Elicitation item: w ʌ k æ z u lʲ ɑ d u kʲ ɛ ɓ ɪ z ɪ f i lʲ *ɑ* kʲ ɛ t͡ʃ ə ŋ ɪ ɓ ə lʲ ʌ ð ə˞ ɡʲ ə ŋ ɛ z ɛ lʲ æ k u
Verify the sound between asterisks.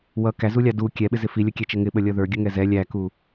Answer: incorrect: ə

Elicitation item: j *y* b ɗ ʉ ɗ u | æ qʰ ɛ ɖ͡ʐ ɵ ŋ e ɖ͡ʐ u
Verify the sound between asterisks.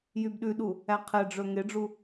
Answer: correct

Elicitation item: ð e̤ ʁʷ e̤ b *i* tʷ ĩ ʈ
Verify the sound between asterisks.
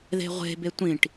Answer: incorrect: e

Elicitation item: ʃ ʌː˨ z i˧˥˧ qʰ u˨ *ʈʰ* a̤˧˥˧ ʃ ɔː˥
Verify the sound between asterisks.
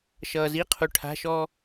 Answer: correct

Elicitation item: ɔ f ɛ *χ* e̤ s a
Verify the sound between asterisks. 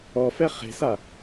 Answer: correct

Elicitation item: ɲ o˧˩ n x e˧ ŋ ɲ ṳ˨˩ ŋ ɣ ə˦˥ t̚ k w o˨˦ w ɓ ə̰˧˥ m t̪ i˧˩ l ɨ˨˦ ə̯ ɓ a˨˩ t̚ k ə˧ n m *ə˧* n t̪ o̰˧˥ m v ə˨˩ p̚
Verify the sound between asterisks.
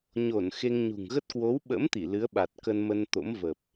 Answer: correct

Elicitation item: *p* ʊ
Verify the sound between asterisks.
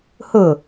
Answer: incorrect: h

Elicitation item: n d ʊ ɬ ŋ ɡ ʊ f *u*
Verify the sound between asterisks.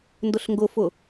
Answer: incorrect: ʊ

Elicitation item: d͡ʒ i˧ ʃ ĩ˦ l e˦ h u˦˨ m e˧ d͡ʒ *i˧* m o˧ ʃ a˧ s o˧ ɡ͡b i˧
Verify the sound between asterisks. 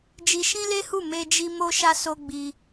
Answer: correct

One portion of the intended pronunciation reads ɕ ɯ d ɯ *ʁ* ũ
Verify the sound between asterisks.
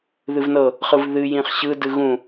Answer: incorrect: ɣ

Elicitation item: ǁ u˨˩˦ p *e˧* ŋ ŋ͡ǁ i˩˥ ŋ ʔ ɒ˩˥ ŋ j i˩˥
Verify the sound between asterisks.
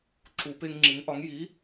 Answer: correct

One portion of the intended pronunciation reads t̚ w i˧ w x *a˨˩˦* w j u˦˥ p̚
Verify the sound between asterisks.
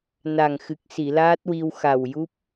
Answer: incorrect: a˨˩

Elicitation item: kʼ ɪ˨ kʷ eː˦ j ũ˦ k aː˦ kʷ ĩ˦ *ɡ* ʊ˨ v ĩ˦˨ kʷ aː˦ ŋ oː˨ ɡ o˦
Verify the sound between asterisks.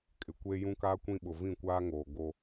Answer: incorrect: ɓ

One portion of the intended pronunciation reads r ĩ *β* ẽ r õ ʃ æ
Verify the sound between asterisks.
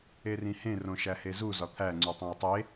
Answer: incorrect: h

